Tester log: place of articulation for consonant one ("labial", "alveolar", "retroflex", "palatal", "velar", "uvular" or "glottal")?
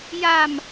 palatal